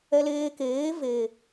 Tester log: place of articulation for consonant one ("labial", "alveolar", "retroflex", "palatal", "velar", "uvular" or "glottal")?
alveolar